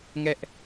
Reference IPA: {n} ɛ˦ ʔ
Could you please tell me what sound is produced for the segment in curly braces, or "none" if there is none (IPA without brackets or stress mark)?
ŋ